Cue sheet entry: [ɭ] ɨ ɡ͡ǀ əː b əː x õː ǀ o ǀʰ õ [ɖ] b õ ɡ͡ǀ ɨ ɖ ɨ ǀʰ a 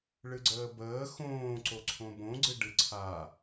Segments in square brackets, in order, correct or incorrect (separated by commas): correct, incorrect